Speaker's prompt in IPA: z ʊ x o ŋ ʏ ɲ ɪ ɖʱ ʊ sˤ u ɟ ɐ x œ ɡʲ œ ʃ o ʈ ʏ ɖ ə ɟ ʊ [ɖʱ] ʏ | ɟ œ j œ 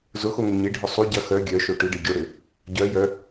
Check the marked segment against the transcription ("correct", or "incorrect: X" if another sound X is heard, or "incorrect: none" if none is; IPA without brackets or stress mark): incorrect: ɽ